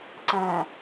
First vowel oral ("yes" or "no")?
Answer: no